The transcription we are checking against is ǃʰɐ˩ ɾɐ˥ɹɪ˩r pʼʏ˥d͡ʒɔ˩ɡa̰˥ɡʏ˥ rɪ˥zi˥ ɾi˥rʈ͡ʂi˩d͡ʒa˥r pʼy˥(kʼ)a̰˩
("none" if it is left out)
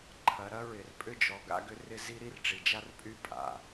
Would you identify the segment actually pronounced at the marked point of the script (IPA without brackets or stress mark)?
pʼ